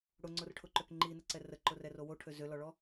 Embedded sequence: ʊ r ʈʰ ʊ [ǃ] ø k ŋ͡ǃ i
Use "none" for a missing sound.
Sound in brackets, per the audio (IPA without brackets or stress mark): ǃ